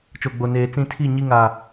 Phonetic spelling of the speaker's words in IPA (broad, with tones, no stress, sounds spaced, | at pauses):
t͡ʃ o˨ ɡ͡b o˨ n eː˨ t͡s ĩ˦ tʰ i˦˨ ɲ i˦ ŋ a˦